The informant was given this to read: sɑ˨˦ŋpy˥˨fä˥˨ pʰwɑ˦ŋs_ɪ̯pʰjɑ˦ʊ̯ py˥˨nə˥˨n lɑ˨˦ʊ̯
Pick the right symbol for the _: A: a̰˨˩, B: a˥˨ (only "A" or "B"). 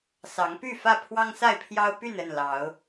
B